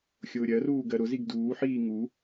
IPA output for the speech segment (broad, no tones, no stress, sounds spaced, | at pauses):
xʲ ʊː ɾʲ ɜ r uː ɡ ɜ ɾ ʊ z i ɡ d uː ħ iː ŋ u